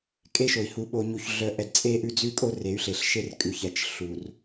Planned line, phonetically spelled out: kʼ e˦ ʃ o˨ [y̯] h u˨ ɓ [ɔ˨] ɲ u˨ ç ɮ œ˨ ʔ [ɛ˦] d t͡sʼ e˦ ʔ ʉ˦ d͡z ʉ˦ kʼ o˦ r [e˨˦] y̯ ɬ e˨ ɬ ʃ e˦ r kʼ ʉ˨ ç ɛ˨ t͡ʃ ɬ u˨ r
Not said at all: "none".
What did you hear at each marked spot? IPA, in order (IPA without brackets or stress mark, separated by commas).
i̯, o˨, ɛ˨, e˨˦